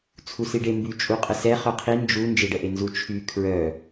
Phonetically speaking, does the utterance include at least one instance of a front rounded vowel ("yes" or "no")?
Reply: yes